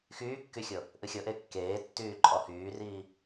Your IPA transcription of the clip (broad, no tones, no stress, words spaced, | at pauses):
xyːkːyxʲɤ | ʔɨxʲɤʔe kːeːtːyː ǃʼɔhyːriː